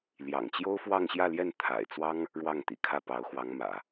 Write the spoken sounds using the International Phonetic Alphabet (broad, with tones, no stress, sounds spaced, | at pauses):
l j ɑ̰˨˩ ŋ t͡ɕ j o˥ ʊ̯ f w ɑ˥˧ ŋ ɕ j ä˥˧ l j ɛ˥˩ n t̪ʰ a̰˨˩ ɪ̯ t͡s w ɑ˥ ŋ | ɻ w ɑ˥˩ ŋ t̪ ḭ˨˩ kʰ ä˥˩ p ɑ˧˥ ʊ̯ x w ɑ˧˥ ŋ m ä̰˨˩˦